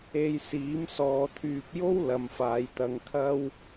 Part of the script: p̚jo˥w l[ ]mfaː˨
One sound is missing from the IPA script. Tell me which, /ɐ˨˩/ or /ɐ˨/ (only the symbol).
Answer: ɐ˨